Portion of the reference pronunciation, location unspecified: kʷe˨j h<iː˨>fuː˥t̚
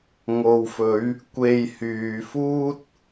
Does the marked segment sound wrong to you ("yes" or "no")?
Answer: yes